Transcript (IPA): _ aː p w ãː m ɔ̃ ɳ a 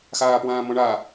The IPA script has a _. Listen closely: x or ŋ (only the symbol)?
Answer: x